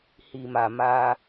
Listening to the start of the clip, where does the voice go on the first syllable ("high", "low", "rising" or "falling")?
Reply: low